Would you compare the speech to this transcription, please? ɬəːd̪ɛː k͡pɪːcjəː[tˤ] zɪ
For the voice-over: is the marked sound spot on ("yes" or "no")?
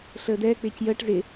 no